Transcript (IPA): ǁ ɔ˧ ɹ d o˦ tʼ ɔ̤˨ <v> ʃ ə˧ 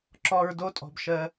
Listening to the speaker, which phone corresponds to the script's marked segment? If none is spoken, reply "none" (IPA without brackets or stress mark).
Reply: b